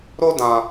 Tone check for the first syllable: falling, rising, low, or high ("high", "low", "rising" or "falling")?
high